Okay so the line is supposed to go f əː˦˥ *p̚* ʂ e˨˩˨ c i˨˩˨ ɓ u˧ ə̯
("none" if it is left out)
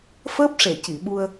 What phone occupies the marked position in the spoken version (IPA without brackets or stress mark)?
p̚